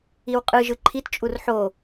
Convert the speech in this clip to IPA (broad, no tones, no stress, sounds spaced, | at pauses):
i w qʼ ɯ ʒ ɯ ǃʰ i t t͡ʃʼ u r ħ o